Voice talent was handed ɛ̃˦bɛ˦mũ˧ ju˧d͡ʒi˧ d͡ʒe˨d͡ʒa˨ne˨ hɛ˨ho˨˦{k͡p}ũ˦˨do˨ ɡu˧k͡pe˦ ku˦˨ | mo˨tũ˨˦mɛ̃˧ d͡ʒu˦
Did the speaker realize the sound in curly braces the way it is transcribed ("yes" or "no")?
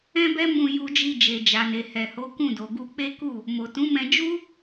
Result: no